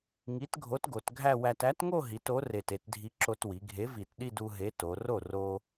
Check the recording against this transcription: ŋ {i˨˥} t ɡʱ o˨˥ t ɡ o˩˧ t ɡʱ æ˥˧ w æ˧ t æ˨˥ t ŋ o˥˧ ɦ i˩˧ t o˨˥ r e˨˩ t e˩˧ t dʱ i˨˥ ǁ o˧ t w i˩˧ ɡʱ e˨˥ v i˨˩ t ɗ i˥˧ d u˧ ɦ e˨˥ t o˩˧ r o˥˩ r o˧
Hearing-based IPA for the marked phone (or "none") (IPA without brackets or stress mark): i˨˥